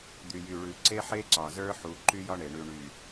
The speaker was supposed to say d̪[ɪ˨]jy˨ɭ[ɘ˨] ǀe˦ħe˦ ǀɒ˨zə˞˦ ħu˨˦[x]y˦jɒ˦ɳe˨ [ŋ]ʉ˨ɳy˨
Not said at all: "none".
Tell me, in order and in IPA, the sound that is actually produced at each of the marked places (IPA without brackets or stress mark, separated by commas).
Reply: y˨, ʉ˨, ǃ, ɳ